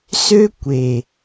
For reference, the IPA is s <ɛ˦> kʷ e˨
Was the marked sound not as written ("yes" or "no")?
yes